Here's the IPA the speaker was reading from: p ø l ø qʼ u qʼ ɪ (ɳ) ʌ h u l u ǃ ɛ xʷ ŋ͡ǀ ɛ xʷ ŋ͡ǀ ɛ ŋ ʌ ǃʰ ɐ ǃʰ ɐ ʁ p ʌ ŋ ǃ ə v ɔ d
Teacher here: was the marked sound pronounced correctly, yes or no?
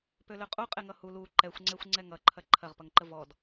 no